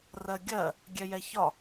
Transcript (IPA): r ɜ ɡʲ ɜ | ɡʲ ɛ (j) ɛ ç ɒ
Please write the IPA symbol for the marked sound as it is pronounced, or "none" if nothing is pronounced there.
j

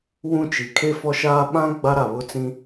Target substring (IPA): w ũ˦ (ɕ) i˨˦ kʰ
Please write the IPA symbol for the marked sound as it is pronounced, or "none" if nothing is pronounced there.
t͡ʃ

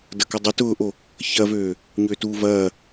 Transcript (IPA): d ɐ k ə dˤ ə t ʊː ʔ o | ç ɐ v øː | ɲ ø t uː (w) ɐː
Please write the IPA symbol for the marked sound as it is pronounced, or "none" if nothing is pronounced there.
v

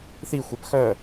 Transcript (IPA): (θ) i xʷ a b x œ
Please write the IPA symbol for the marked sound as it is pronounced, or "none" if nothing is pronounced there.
θ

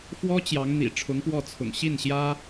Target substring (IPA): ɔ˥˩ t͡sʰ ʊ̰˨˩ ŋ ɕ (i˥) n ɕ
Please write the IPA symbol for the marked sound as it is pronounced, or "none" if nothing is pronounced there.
i˥˩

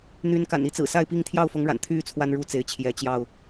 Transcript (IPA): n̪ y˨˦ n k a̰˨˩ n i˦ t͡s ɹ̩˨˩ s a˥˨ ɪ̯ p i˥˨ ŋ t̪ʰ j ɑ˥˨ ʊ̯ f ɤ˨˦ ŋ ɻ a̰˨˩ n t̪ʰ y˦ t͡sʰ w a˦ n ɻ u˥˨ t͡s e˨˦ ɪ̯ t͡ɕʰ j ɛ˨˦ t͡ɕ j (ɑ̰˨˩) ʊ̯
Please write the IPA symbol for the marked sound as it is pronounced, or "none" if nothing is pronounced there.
ɑ˥˨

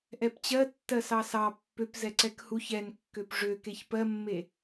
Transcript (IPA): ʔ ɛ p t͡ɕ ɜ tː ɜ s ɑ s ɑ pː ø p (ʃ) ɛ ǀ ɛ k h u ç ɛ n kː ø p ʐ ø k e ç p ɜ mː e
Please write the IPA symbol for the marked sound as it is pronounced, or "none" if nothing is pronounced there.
z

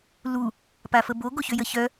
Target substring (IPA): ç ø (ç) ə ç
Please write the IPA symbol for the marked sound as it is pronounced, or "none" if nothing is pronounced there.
j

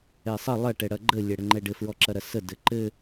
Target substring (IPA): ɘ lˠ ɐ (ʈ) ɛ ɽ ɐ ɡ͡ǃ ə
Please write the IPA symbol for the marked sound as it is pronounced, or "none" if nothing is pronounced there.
ʈ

